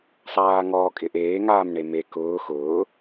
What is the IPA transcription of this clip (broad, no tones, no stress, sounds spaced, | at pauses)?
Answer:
sˤ aː ŋ ɔː kʼ ɪ ʔ eː ŋ aː m ɳ e m e k ʊː x ʊː